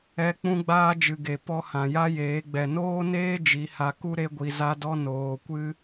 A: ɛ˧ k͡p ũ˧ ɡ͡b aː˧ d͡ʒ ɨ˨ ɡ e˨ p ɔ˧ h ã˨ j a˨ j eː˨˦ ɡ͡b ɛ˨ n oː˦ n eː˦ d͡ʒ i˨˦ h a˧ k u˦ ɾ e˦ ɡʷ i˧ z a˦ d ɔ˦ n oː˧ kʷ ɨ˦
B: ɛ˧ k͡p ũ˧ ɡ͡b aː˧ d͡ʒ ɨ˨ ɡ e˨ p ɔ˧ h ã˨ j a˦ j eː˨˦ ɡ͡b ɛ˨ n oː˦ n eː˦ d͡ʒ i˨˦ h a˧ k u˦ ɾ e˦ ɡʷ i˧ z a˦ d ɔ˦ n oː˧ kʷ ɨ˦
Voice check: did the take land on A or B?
B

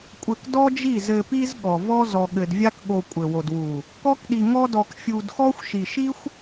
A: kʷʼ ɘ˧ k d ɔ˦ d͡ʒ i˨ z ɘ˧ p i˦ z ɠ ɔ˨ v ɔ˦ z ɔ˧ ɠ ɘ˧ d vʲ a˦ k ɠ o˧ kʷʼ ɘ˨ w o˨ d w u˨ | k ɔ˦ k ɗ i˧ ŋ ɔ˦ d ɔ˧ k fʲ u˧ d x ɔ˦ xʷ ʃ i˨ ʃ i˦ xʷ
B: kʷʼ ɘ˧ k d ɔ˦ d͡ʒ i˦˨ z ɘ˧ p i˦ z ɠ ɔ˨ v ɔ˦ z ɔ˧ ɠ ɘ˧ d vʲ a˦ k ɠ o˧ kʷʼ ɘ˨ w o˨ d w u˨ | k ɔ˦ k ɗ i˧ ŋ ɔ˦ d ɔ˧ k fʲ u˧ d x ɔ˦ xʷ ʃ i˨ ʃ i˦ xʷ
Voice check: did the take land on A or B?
B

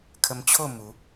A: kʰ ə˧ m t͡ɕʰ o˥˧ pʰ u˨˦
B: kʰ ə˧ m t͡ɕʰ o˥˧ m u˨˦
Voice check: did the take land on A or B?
B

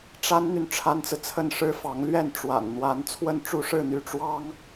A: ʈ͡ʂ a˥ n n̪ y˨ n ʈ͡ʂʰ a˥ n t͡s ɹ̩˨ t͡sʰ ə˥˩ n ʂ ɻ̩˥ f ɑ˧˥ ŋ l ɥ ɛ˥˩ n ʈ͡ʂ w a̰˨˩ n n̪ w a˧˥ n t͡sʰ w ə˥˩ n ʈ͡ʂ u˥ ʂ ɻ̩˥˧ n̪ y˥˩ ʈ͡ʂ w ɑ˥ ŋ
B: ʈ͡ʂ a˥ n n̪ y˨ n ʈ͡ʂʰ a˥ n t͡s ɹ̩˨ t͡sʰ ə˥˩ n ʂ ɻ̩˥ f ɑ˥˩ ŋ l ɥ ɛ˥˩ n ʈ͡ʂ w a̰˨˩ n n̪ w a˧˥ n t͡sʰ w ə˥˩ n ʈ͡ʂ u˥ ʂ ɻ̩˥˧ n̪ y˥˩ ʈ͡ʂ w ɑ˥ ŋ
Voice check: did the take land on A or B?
A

